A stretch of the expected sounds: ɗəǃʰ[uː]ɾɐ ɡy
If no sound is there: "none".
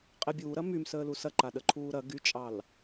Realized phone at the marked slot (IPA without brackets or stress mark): uː